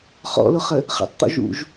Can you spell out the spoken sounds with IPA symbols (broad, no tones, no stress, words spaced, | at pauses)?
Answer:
χɔ̰lʊχə | χə̰tˤt̪ɔ̰ʒṵʒ